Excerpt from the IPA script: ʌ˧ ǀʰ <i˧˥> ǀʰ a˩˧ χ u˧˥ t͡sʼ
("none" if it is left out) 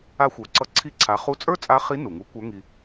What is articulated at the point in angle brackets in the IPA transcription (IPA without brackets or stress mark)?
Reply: i˧˥